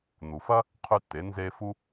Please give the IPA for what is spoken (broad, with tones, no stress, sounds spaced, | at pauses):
n̪ u˩ f ɐ˥ | qʰ ʉ˧ tː e˩˧ n z e˧ f u˥